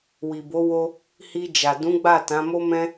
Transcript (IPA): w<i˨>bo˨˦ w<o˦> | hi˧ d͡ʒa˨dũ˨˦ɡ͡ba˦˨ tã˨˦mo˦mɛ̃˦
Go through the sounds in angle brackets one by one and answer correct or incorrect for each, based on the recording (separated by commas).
correct, correct